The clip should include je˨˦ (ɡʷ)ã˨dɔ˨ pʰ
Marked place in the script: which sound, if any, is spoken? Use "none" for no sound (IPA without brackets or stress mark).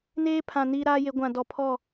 ɡʷ